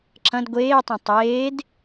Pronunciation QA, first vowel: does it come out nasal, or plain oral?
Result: nasal